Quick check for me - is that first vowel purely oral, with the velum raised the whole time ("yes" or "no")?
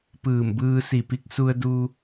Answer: yes